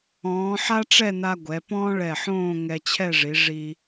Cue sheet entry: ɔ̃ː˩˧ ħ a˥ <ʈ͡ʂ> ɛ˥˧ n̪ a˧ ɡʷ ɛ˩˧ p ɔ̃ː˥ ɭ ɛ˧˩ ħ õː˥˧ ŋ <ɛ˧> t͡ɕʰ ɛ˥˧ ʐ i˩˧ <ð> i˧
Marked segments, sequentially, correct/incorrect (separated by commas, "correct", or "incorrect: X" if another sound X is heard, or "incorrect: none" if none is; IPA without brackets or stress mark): correct, correct, incorrect: ʐ